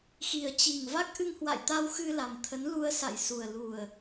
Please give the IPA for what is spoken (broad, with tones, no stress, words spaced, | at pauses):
xi˨˩ə̯t͡ɕi˨˩ŋ va˦˥k̚ʔɨ˧ŋhwa̰˧˨jt̪a˧w xɨ˧ la˨˩mt̪ʰə˨˦n lu˧ə̯sa̰˧˨j su˨˩ə̯ lu˨˩ə̯